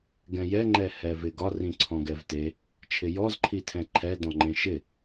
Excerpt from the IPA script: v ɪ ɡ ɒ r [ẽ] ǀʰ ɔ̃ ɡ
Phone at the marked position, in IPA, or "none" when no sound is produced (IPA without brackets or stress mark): ĩ